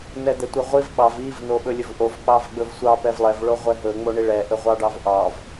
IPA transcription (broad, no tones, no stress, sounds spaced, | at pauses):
n ɛ d̪ ɛ tʷ ɛ ʁʷ i v ɓ ɑ v i v n o ɓ ɵ lʲ ɵ v ʔ o v k͡p ɑ v ɡ͡b ɵ v sʷ ɑ p ɛ v lˠ ɛ v ɭ o ʁʷ ɛ ɦ ɵ ŋ͡m o ɳ i ɭ ɛ ʔ ɵ ʁʷ ɑ ɖ ɑ v ʔ ɑ v